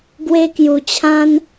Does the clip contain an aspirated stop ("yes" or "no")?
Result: yes